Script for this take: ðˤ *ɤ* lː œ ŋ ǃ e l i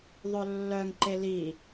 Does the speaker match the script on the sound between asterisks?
no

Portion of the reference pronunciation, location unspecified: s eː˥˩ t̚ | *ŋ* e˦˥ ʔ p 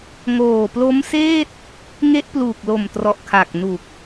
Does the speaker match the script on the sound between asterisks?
yes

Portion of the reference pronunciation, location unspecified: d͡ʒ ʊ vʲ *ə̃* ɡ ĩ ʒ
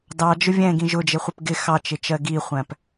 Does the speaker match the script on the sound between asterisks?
no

